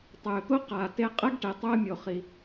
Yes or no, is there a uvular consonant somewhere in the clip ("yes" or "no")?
yes